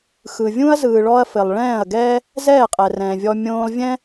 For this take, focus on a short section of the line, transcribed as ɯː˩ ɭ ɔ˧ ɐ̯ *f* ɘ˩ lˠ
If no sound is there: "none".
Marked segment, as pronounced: f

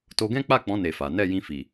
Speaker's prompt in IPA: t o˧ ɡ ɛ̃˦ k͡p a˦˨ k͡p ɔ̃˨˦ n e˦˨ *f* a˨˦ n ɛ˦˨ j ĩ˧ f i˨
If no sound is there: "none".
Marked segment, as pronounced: f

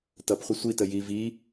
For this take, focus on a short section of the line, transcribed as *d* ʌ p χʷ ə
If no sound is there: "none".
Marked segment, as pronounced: t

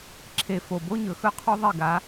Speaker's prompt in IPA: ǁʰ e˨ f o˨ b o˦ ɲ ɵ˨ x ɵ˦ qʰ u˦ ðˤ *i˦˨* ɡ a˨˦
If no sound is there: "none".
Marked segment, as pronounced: i˦˨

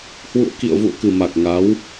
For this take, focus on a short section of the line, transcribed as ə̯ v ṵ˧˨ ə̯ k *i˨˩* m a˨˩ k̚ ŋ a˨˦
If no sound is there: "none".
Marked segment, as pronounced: ɨ˨˩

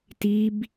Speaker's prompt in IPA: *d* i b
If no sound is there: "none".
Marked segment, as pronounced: t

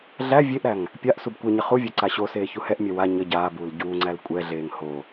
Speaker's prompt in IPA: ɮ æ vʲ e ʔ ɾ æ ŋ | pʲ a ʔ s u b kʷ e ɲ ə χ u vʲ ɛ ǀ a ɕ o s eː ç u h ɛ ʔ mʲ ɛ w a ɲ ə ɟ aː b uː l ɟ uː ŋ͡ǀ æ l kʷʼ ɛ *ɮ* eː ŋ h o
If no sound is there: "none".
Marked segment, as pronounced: ɮ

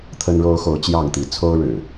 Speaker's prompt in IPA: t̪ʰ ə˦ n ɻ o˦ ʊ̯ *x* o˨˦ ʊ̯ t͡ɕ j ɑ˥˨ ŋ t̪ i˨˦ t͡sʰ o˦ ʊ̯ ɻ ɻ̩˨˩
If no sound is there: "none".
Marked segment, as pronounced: x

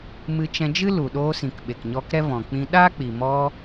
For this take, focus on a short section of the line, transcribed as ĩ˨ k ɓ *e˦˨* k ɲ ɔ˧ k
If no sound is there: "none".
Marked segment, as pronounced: e˨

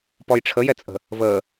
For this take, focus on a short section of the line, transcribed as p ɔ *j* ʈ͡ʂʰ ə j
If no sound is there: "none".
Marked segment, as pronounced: j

